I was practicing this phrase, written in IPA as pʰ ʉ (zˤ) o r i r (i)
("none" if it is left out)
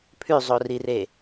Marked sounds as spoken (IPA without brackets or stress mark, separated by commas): zˤ, e